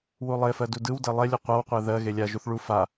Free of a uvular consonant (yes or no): no